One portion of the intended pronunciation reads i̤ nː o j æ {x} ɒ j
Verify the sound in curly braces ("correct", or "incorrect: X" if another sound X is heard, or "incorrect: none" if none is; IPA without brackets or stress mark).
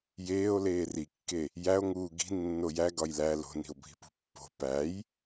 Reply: incorrect: ɡ